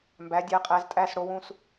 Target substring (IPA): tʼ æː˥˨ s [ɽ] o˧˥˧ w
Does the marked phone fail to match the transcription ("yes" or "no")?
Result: no